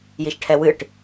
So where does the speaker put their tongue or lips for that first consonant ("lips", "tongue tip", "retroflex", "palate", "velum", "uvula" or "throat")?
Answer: palate